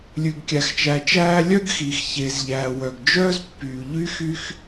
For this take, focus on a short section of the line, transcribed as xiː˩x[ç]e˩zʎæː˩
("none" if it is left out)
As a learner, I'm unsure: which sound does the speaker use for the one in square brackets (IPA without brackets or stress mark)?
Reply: ç